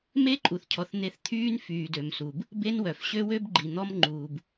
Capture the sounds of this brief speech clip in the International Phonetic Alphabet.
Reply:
m e˦ ǃʼ u˨ θ cʰ ɔ˨ θ n̪ e˨ θ t̪ʰ yː˦ n f yː˨ d ø˨ m s u˨ b | b e˦ n w œ˨ f ɕ ø˦ w ø˦ b ɡ͡ǃ i˨ n̪ ɔ˦ m ŋ͡ǃ uː˨ b

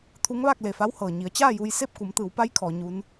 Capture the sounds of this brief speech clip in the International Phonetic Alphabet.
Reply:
t̪ʰ u˧˥ ŋ ʋ aː˥˨ k̚ l e˧˩ f a˧˥ w h ɤː˩ ɲ i˩˧ ə̯ t͡ɕ aː˥˨ j u˧ j s e˥˨ p̚ k u˩˧ m t̪ ɯː˩˧ w p a˧˥ j kʰ ɔː˩˧ ɲ u˧˥ n

